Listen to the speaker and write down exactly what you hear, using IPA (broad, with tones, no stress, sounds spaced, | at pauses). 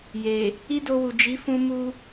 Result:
j e˨ | i˦ d o˧ w u˨ d͡ʒ i˨˦ f ũ˧ m u˧